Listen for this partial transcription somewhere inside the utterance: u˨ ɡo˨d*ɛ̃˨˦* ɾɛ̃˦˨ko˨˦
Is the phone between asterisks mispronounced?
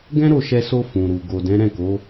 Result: no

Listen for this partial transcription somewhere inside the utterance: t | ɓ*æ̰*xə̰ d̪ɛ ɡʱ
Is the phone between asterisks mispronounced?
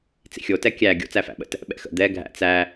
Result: yes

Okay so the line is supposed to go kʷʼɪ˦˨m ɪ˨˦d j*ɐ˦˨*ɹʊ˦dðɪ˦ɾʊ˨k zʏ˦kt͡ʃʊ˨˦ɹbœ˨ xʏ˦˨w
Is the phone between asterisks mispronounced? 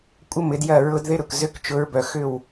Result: no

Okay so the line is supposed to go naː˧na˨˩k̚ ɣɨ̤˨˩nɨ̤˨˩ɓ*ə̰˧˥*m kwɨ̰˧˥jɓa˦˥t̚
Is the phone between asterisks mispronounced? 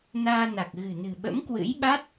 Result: no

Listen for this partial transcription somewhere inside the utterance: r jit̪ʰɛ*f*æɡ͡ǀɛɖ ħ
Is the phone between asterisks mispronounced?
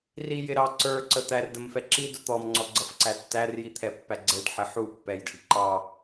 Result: yes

